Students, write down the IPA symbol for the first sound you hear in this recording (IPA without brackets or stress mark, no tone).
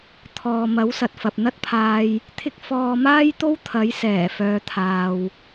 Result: t̪ʰ